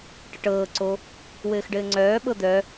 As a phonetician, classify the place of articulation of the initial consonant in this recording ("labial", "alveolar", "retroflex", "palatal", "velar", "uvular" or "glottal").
retroflex